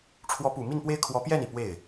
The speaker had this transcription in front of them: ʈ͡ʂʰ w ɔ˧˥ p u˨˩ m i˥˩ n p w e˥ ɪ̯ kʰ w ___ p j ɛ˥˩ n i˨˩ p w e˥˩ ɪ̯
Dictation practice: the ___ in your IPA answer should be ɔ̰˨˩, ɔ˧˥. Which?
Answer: ɔ˧˥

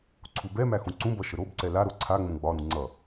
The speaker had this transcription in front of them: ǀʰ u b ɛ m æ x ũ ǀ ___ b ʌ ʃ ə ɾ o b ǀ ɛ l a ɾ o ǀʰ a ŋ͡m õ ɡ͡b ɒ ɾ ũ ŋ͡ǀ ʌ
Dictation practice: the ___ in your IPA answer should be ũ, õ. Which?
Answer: ũ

